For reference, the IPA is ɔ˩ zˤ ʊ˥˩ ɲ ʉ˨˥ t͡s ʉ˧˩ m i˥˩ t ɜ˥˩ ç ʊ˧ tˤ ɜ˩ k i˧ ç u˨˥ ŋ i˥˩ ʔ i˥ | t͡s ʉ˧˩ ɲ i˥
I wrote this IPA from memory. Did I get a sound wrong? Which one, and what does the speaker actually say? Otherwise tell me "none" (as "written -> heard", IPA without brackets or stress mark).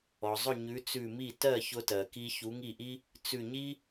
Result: tˤ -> t